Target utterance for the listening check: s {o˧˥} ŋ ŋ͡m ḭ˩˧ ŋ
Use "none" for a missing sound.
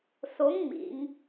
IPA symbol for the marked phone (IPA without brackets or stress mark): o˧˥